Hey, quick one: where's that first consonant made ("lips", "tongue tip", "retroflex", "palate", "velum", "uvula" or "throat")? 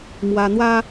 lips